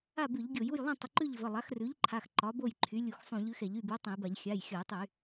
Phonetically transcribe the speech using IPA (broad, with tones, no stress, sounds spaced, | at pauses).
a˥˨ b ʉ˧˩˧ ʎ ɡʲ o˧˩˧ j u˥˨ j lˠ ũ˥˨ tˤ ə˩˧˩ ǃ ʉ˥˨ ʎ v ə˩˧˩ lˠ a˩˥ x r ʉ˩˥ ʎ ǃʰ a˩˧˩ x ǃ ɒ˩˥ b o˥˨ j ǃʰ y˩˥ lʲ u˧˩˧ x sˤ ũ˧˩˧ ʎ ʉ˩˥ x ɛ˧˩˧ ʎ y˥˨ b u˩˥ tˤ ə̃˧˩˧ j b a˧˩˧ ʎ xʲ a˩˧˩ j xʲ ɒ˧˩˧ j tˤ y˧˩˧